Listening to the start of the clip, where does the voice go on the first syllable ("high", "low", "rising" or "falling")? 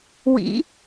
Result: rising